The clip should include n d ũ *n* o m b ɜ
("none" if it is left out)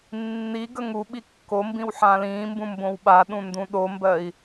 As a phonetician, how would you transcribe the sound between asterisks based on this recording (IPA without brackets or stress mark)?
ɗ